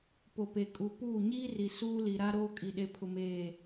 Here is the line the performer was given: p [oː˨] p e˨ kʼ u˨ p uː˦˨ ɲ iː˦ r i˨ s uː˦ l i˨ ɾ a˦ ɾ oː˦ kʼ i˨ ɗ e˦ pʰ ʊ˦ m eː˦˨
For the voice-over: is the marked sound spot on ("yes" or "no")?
no